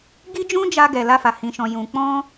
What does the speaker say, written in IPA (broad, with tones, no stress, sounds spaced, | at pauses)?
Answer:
ɡ i˦ d͡ʒ ũ˦ d͡ʒ a˧ ɡ ɛ˨ l a˧ f a˨ h ĩ˨ ʃ ɔ̃˨ j ũ˨ k͡p ɔ̃˧